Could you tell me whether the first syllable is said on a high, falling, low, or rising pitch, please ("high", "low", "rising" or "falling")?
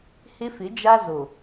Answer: high